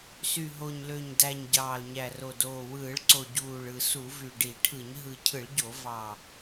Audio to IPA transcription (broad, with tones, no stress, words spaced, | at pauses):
sy˨˩ɦo˨˩ɲlø˨˩ɲdæ˨˩ɲ ɟɑː˨˩lɲæ˨˩ro˨˩doː˨˩ wɯː˧˩˧ɭǀo˨˩ ɟuː˨˩ɭɯ˨˩ su˧˩˧vy˨˩ɖi˧˩˧ʈʰɯ˧˩˧ɲ ɦɯ˨˩cʰɯ˧˩˧ɭɟo˧˩˧ vɑ˨˩